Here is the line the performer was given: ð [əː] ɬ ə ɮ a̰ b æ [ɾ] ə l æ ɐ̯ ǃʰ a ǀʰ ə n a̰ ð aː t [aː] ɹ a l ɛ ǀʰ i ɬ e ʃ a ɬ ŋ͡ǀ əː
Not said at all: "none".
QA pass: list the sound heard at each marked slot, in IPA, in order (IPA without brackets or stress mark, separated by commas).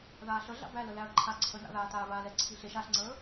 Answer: aː, l, aː